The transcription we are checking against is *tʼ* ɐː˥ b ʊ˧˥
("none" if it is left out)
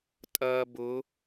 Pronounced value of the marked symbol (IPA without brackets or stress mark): tʼ